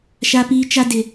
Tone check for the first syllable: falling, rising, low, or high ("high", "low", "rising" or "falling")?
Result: low